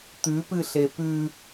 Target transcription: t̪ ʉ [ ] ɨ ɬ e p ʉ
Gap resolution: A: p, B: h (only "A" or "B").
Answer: A